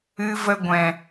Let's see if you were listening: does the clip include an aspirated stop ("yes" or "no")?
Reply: no